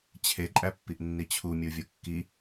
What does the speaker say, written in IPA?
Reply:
t͡ɕʰ e ǃʼ æ pː i ʔ nː i t͡ɕʰ u mʲ u vʲ o kː i

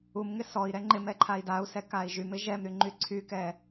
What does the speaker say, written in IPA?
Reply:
u m ŋ ɪ s ɔ i̯ ɾ ɛ ŋ͡ǃ ɪ m ɛ ǃʰ a i̯ d a u̯ s ɛ k a i̯ ʒ y m ɪ ʒ ɛ m ɾ y ŋ͡ǃ y ǀʰ y k ɛ

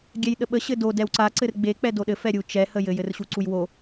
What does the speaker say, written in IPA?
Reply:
ɡʲ ɛ j ɗ ə ɓ ə ɕ ɘ d o d ɛ w ǀ a ǀ ɘ r ɡ͡b e k͡p ɛ d o ɗ ɘ f ɛ ɾʲ u t͡ʃ ɛ h ə j ɘ j ɘ r ɕ u ǀ u j w o

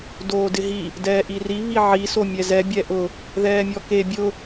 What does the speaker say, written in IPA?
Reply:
d oː d ɪ ɦ i | d ɛː ʔ i r i β i ʕ i s o mʲ ɛ z ɛ bʲ ɛ ʔ ʊ | ð ɛː mʲ ɔ k e bʲ ʊ

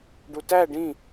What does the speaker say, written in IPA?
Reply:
ɖ u t æ ɖ ĩ

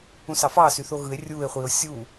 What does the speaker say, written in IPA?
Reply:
ũ s ɑ f ɑː s y θ o ɣ ɯ e̯ rʲ u e̯ χʷ i o̯ sʲ u

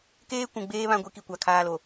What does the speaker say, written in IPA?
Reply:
k eː˦ kʷ ũ˨ ɡ͡b eː˦ β ã˦ ɡʷ i˦ k i˨ kʷ a˨ kʰ aː˦ l o˨

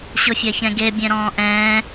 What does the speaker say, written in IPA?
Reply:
ɕ ʊ fʲ a ç ɛ̃ ɡ e bʲ ɛ̃ ɾ ɔ̃ː ʔ ɛ̃ː

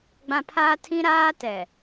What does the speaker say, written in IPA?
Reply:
ɡ͡b ã˦ pʰ a˦ tʰ ĩ˦ ɾ aː˦ t ɛ˨

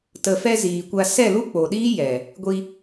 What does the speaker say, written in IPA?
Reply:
t ə˨ f ɛ˧ z iː˨ kʷ a˧ s ɛ˦˨ l u˦ k͡p o˨ ɗ iː˦ j ɛ˨ | ɡʷ i˧

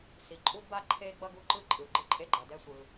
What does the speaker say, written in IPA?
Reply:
s i˩ ǃʼ u˥ d b a˥ ǃʰ e˥ ɡ͡b ʌ˥ ɡ u˥ ǃ ɯ˥ ǃʼ ɯ˩ ɡ͡ǃ ɯ˥ ǃʼ e˥ ɡ͡ǃ ʌ˩ d ɛ˥ sʷ ɯ˩

